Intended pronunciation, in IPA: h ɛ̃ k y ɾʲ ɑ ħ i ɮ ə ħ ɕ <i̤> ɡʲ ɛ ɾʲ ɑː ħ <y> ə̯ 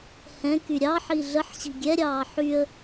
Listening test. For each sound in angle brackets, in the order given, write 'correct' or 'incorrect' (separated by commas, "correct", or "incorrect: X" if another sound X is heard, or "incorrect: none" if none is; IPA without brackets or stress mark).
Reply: correct, correct